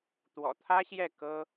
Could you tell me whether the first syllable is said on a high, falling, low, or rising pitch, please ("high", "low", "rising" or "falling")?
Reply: low